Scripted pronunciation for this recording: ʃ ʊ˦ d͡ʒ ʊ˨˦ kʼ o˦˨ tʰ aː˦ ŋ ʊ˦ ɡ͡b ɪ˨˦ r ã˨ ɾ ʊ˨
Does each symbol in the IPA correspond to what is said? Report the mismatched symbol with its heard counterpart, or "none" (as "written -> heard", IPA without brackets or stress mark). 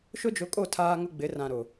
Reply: none